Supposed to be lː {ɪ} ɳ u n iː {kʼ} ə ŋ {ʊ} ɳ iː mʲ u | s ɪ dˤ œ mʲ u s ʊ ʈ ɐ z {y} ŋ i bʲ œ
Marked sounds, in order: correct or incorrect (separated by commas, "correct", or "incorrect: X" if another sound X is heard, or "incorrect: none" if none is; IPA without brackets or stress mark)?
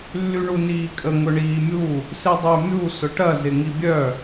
incorrect: y, correct, correct, incorrect: ɪ